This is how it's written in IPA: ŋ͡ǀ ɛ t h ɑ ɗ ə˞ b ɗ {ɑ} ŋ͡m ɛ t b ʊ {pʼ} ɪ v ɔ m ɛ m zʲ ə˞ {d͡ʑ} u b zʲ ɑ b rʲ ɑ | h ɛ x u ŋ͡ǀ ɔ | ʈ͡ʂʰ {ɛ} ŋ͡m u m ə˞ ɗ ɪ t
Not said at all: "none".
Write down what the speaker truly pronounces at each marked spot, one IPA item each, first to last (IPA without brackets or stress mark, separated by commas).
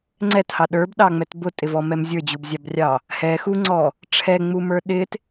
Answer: ɑ, tʼ, d͡ʑ, ɛ